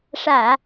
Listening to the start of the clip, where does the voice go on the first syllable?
low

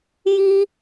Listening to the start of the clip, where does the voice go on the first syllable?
high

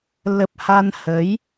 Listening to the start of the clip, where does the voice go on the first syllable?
low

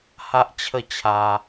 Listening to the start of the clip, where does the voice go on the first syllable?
high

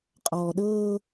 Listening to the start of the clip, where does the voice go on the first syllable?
low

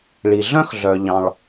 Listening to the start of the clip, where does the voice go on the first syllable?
low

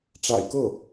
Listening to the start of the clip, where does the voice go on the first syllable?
low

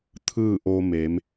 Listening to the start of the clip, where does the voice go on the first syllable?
falling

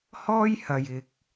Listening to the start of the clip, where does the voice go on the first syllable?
high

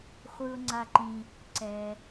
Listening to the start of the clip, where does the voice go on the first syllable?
low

